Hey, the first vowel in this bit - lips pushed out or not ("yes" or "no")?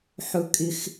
yes